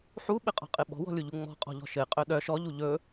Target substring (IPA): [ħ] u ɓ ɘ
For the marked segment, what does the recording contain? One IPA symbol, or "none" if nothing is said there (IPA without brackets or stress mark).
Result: ħ